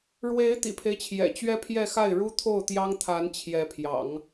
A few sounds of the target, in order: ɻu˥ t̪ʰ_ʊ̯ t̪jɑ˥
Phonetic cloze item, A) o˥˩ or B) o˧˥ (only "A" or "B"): A